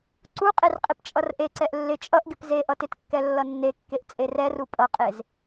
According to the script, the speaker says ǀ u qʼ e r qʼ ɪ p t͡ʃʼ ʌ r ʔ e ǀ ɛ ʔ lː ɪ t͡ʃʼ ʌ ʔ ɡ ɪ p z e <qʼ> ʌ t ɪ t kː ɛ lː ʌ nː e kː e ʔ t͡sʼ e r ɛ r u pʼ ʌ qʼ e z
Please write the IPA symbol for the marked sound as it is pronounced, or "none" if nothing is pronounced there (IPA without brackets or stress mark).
ʔ